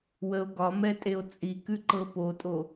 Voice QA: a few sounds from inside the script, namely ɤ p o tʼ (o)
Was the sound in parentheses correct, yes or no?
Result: yes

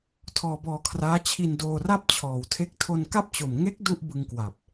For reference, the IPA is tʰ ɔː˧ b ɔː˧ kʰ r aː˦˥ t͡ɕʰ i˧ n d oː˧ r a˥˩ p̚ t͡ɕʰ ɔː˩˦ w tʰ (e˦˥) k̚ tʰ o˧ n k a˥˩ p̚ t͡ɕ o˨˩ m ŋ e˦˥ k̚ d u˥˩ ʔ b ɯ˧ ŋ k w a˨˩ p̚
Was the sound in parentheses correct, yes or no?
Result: yes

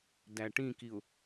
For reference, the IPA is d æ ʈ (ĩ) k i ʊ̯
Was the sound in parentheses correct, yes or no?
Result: yes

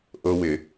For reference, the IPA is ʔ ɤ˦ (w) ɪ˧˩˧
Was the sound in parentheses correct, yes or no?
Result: yes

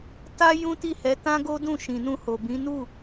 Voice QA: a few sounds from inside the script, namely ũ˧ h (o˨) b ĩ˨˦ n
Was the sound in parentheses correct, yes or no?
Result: yes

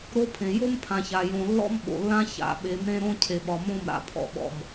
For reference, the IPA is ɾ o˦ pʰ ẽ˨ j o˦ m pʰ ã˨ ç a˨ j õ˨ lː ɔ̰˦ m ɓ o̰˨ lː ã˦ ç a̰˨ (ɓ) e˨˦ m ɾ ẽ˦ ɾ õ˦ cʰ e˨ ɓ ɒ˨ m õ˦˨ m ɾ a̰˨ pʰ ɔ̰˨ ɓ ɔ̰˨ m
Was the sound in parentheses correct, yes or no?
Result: yes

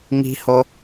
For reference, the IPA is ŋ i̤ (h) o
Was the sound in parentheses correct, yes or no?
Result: yes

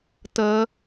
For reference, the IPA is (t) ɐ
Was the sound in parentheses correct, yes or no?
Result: yes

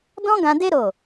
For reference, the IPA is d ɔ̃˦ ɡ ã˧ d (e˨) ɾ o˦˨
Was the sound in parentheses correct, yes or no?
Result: no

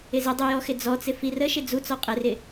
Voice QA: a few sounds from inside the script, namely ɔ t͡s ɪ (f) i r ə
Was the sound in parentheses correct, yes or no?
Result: yes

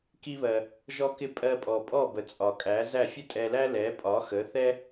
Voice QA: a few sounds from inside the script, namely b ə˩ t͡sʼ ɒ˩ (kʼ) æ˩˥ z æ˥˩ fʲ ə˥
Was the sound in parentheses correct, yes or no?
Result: yes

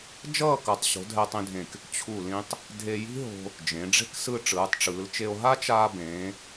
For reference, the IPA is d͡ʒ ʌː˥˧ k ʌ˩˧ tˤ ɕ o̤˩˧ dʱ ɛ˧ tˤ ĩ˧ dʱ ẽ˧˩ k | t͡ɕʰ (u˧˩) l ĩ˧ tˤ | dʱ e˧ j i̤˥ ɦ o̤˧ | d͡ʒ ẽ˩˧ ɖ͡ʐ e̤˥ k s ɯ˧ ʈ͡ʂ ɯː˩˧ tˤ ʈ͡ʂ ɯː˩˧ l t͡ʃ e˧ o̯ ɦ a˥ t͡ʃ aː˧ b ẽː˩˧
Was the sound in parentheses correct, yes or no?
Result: yes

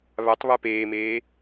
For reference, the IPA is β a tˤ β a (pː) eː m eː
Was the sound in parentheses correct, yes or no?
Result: no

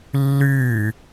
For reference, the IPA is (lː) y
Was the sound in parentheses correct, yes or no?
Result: yes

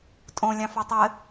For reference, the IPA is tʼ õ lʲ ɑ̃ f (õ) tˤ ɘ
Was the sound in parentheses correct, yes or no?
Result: no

